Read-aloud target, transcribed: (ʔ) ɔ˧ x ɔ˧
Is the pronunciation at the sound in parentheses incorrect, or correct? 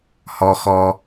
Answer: incorrect: h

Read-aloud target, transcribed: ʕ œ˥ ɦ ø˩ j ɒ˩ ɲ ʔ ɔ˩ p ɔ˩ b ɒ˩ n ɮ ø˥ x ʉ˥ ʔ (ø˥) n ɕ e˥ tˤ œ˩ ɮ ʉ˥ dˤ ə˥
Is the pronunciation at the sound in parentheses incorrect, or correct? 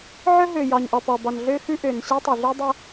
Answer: incorrect: ø˩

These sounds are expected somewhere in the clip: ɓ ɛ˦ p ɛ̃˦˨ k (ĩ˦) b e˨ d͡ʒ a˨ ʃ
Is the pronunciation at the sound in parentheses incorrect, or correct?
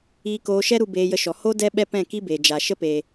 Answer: incorrect: i˦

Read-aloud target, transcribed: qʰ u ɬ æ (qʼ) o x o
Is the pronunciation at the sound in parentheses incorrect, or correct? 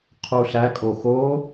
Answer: incorrect: kʼ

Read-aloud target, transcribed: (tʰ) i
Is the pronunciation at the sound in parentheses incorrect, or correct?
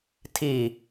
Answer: correct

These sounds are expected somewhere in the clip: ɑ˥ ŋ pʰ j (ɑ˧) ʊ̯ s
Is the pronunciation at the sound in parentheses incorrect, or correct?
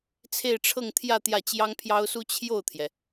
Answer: incorrect: ɑ˥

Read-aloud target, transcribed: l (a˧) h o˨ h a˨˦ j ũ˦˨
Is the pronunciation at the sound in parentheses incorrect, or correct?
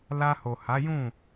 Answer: correct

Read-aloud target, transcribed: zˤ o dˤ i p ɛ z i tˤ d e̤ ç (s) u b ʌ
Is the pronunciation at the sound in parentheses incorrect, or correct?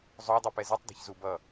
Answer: incorrect: z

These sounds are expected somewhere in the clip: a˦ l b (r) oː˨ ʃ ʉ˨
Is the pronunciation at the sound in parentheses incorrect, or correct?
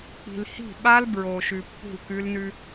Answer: incorrect: ɹ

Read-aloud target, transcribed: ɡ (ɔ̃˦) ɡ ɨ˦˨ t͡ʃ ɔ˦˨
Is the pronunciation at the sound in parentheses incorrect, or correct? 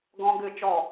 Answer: correct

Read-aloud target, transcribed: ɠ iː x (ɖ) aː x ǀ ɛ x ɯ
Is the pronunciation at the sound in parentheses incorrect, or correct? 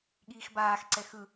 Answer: incorrect: b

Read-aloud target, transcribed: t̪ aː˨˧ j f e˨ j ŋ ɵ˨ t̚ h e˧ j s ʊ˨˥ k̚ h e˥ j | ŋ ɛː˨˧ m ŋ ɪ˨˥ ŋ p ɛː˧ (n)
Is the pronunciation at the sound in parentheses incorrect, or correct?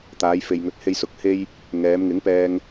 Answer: incorrect: ŋ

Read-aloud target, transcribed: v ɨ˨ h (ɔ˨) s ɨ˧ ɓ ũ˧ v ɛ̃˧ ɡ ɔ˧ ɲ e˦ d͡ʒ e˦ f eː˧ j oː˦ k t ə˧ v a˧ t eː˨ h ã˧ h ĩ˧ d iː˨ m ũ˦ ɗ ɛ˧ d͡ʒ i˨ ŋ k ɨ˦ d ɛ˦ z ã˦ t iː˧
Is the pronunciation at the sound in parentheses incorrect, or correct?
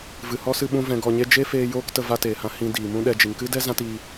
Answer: incorrect: ɔ˦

